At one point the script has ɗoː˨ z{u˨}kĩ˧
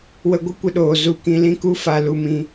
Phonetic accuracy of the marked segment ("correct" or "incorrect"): incorrect